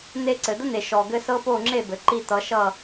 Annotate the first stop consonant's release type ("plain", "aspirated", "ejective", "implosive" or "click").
click